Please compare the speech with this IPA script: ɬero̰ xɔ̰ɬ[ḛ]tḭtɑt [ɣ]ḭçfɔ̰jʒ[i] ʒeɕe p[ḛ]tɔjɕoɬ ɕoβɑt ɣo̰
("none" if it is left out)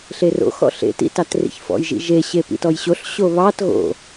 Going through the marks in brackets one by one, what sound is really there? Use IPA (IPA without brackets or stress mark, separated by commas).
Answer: ḛ, r, ḭ, ḭ